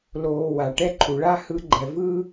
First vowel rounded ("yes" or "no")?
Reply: yes